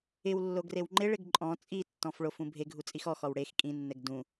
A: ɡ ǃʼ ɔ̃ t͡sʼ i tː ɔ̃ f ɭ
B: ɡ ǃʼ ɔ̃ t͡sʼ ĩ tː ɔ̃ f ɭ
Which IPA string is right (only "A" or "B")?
A